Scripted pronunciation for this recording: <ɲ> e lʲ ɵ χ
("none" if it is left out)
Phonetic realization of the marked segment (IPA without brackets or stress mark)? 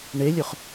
ɳ